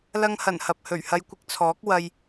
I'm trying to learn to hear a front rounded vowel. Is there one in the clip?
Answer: no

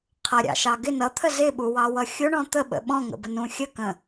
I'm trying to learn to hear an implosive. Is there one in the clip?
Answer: yes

